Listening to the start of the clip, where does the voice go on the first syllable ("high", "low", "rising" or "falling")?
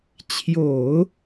low